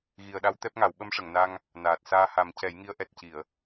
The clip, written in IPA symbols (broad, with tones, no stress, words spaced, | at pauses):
ɣi˨˩ə̯ɗa˧˥w t̪ɛ˦˥p̚ŋa˨˩˦w ɓə˧˥mʂə˨˩˨ŋna˧ŋ | naː˨˩t̚ saː˧ha˨˩˦m cɛ˨˩˦jŋi˧˥ə̯ ʔɛ˨˩t̚ci˨˩˨ə̯